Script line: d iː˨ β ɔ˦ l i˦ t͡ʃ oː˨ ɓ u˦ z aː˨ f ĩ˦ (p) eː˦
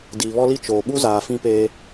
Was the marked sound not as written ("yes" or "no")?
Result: no